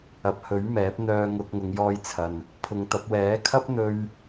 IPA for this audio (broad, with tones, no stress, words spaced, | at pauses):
ɐ˨p̚hɵ˨˥ɥmɛː˨˥p̚n̪œː˧ ŋʊ˧k̚ ŋʊ˨˧ŋjɔː˧jt͡sʰɐ˨n | pʰʊ˨˧ŋt̪ɐ˨˥p̚ wɛː˨˥kʰɐ˥p̚ n̪ɵ˥ɥ